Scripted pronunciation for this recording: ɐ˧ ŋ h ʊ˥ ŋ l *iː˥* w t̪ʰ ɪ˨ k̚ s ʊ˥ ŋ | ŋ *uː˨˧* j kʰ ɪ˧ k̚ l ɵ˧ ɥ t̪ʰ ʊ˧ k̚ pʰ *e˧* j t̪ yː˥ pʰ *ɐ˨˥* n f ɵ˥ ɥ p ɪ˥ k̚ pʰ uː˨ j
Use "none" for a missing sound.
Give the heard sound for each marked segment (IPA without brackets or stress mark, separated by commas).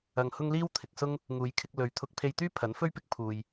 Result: iː˥, uː˨˧, e˧, ɐ˨˥